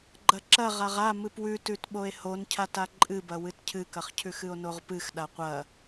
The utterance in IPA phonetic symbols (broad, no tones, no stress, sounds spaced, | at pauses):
ɡ͡ǃ ɐ ǁ ɐ ʁ a ʁ a m ɨ p w ʉ t ʉ t ɓ o e̯ h o n cʰ a t a ǃʼ ɨ b ɐ w ɨ t cʰ ɨ k ɐ χ cʰ ʉ x ɨ o̯ n o ʁ p ɨ x ɗ a qʷ ɐ